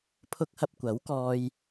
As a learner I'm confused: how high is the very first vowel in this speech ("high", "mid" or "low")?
high